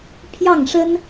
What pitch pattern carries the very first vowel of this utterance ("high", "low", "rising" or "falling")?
falling